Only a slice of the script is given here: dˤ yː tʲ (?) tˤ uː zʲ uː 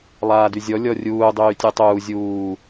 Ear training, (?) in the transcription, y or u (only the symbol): u